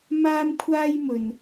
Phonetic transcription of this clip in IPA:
maː˥mkʷʰaː˥jmɵ˧n

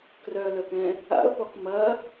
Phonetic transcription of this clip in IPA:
krœlœkɛ̃ | a̰ʊ̯pɔk mɐ

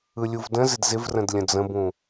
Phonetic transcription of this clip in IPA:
ɯlʲuvdə̃zɪd zɪvrə̃d lʲə̃d͡zə̃bũ

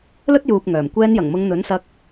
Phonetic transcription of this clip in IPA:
lɵ˥t̚juː˨p̚ ŋœː˨˩m kʷɛː˧njɐ˨˩ŋmʊ˨˧ŋ n̪ɵ˨˥nsɐ˧k̚

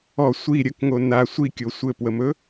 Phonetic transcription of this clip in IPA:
ɔ sʷi ɾʲəkŋo na sʷikʲo sʷɘpwəmɵ

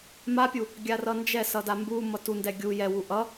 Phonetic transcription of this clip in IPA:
mapʲu | ɡʲarʌnd͡ʒɛ sʌdambu mʌtundɛ ɡʲu jɛwu ʔʌ

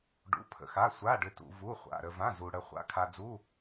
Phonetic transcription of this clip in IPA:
ɖṵ˩˧˩pʰə̰˩xa˩˧˩ sʷa˩˧˩ɖʏ˩tṵ˩ vu˩˧˩χʷa̰˩˧˩ ɾə˩vã˩˧˩ zu˩ ɽə˩χʷa̰˩˧˩kʰa˩d͡zu˩˧˩

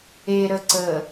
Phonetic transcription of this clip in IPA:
eɾə ǀə

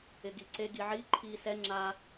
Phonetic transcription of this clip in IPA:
ɪɡiǀe ɡiʕi ǃʰiːsɛ ŋ͡ǁa

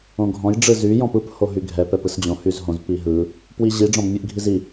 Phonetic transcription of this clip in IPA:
õɡʱɔ̃j ɖ͡ʐɯzy jɔ̃pɯp hoɦyɡʱɛ pɛpɯsd͡ʑõ hyzɦõz piɦɯ | pwiʑi ɖ͡ʐɔ̃bmʲɯʔɡʱizi

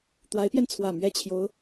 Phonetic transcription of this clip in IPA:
t̪wa˧˥ɪ̯pjɛ˧nt͡sʰwä˨˩ mɥɛ˥˩ t͡ɕʰjo˧˥ʊ̯

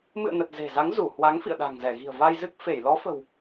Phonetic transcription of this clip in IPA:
mɨ̰˧˨ə̯nə˨˩t̚ ze̤˨˩za˨˦ŋzu˧˩hwa˨˦ŋ fḭ˧˨ə̯ɗa̤˨˩ŋzɛ˧˩ ɣi̤˨˩ə̯va˧jzɨ˦˥k̚fe˧˩j lɔ˨˦fə̤˨˩w

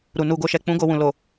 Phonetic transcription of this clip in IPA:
ɾu˨nu˧ɡo˧ʃɛ˧ k͡pũ˦ɡo˦˨wũ˨ lo˨

